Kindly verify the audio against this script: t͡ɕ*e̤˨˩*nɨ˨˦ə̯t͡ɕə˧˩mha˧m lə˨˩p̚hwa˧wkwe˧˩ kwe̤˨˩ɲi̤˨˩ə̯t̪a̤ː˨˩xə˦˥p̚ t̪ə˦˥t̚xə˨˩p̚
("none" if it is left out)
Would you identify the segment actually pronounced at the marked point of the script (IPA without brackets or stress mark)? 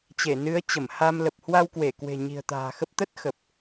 e˧˩